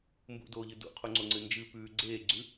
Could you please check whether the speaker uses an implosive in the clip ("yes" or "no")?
no